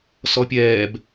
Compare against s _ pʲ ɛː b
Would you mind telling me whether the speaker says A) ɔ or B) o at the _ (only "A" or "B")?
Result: A